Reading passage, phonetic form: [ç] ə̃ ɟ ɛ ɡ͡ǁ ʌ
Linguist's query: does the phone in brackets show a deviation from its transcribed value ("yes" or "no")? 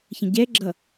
no